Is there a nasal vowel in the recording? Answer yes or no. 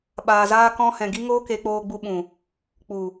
yes